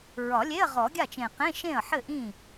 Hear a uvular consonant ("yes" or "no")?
yes